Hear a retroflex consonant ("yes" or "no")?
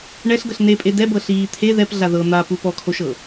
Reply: yes